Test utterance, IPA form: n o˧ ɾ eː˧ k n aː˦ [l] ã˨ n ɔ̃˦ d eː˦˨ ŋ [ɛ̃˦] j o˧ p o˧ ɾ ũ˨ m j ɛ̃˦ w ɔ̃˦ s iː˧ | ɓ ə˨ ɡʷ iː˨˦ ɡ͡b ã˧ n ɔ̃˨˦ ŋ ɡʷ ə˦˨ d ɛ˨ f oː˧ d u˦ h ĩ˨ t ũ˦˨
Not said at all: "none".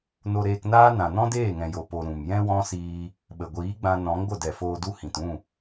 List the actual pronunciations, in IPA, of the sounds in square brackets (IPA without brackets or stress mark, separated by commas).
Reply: n, ɛ̃˨